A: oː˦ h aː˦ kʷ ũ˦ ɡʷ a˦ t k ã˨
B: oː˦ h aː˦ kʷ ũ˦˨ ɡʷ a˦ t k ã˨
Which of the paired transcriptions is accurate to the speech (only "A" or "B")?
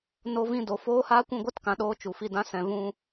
B